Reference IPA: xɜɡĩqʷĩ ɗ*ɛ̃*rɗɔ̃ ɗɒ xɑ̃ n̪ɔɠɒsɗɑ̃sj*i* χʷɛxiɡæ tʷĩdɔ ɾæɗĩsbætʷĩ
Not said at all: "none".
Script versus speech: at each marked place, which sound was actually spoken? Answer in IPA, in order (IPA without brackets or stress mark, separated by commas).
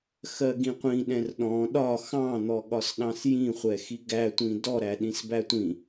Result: ɛ̃, ĩ